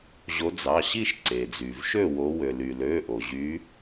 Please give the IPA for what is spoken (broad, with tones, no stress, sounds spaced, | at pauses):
ʑ o˨˦ d͡z ɑ˩˧˩ ɕ i˥˨ ʃ ǀ e˩ d͡z y˩ v ʃ ø˥˨ w o˨˦ w ø˩ l y˩ l ø˩˧˩ ʔ o˩ ʑ y˨˦